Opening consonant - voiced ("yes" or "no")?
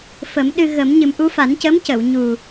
no